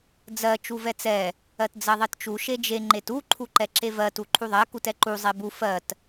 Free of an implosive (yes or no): yes